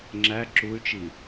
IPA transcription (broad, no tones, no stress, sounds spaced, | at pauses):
ŋ͡ǁ æ ǁ u y̯ t͡ʃ i